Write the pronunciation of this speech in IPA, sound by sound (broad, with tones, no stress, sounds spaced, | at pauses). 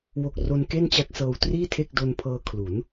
w o˨˩ k̚ r o˧ n k e˥˩ n t͡ɕ a˦˥ k̚ s ɤː˧ w t r iː˥˩ tʰ e˥˩ k̚ d o˧ n pʰ ɤː˧ kʰ l u˩˦ n